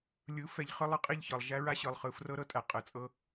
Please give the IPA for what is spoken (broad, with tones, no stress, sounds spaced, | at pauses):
lʲ ɯ˨˦ f ɛ˨ ʎ χ ɯ˧ lˠ ɤ˦ qʼ i˦˨ ʎ ç ɤ˨ lˠ ʒ æ˦ ɹ a˦ ɕ ɯ˨ lˠ χ ɯ˨ f r ɤ˦ ɾ ɤ˧ tʼ æ˨ qʼ ə˨˦ t͡sʼ ɤ˦